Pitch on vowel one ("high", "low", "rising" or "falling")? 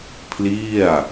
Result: falling